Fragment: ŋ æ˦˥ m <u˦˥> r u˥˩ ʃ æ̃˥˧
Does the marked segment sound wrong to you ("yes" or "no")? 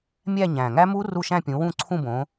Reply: no